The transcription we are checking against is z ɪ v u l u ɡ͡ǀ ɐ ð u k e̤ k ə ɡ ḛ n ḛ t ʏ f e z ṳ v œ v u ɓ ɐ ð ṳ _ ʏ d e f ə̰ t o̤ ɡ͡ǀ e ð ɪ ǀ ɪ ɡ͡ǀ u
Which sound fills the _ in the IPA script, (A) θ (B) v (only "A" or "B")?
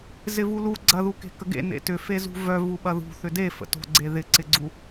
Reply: A